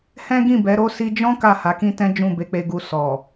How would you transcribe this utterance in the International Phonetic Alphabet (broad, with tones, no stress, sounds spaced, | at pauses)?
h ɛ̃˦ ɡ ĩ˦˨ b ɛ˨˦ ɾ o˦˨ s i˧ d͡ʒ ɔ̃˦ k a˦˨ h a˨˦ k ĩ˦ t ɛ̃˦ d͡ʒ ũ˦˨ b e˧ k͡p e˧ ɡ u˧ s ɔ˨